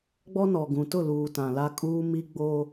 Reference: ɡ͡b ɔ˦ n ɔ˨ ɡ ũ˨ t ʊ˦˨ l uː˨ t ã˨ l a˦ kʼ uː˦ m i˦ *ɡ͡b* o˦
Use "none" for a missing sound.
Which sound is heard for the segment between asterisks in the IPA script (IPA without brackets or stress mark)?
ɡ͡b